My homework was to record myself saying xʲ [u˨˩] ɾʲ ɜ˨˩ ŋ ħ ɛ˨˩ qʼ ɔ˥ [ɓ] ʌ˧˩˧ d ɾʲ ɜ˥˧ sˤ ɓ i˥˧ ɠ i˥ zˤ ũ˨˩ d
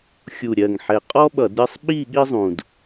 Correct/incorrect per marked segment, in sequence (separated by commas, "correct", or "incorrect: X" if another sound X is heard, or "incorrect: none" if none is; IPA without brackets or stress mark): correct, correct